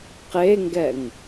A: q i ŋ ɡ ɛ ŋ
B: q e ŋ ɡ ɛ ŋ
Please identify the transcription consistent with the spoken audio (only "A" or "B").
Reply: B